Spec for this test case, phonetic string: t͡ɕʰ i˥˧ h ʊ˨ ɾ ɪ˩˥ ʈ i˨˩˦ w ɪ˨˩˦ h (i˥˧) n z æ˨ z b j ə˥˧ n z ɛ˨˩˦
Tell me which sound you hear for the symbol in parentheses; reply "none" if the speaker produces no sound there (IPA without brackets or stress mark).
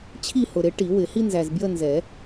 i˥